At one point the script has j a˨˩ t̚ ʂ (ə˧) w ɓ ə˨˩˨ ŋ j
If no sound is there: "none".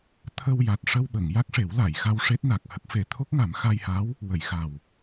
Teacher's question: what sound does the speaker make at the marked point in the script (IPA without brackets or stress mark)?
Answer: ə˧